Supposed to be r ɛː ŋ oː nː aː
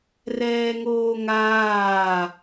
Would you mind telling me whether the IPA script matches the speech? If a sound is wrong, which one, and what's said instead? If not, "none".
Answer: nː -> ŋ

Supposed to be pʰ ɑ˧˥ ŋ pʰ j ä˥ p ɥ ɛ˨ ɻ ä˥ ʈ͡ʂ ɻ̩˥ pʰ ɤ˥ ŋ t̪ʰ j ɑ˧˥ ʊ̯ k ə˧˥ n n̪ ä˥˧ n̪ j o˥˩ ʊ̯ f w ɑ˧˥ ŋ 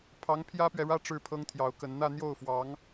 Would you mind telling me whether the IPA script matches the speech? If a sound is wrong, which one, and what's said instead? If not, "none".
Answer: none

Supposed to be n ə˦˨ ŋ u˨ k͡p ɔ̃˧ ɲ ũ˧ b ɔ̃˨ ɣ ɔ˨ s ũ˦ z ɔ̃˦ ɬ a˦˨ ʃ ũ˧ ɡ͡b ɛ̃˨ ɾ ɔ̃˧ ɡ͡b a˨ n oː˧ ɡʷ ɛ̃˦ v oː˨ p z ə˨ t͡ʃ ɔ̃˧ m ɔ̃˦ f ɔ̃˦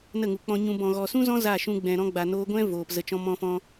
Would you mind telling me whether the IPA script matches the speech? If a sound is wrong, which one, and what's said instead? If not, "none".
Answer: ɬ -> z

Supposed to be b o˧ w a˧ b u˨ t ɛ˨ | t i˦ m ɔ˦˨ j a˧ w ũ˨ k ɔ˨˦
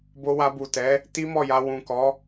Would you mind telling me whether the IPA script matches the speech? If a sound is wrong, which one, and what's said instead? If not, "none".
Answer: ɛ˨ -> ɛ˨˦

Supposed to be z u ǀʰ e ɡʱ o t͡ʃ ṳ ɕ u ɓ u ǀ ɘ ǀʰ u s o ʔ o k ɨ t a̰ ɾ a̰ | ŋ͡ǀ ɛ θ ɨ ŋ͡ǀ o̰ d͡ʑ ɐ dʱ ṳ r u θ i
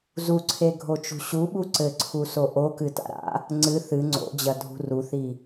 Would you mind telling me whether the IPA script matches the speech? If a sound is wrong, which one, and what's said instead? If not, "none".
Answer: ɛ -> ɨ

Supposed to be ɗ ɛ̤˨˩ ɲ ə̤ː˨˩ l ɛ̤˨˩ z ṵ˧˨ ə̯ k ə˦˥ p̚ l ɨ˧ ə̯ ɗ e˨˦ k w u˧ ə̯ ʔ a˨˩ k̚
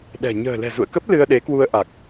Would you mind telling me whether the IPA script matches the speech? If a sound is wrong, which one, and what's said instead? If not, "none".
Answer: none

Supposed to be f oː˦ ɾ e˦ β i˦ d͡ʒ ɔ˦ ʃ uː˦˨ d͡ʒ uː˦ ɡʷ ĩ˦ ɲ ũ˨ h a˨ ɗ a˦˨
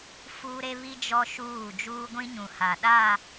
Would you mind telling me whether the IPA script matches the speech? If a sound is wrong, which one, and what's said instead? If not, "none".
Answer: oː˦ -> uː˦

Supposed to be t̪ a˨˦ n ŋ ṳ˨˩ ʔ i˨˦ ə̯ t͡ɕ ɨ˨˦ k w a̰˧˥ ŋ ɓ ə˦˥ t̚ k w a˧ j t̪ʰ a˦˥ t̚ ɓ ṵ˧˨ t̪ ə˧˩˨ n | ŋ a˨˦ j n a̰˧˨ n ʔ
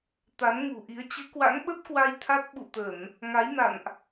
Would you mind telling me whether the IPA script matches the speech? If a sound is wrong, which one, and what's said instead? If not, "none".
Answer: none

